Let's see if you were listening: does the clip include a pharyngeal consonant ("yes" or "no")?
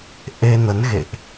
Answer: no